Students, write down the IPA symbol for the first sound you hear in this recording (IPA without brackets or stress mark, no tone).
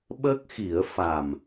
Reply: ɓ